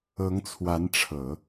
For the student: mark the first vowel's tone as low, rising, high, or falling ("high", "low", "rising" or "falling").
rising